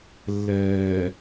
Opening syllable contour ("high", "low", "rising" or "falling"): low